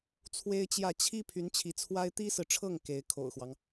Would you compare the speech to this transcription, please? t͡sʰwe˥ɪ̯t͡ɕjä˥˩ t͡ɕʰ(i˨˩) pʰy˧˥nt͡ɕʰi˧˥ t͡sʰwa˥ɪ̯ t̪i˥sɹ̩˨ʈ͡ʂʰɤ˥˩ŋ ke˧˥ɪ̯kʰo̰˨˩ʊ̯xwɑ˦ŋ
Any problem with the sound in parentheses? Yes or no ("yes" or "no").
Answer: yes